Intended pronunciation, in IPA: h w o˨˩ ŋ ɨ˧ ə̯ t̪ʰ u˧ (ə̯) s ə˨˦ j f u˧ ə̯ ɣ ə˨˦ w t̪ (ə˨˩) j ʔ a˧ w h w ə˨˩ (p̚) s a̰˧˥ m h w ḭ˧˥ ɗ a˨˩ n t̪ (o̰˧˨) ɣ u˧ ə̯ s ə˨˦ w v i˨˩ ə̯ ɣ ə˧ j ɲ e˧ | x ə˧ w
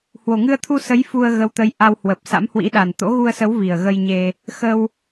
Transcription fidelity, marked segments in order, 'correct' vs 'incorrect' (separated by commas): incorrect, incorrect, correct, incorrect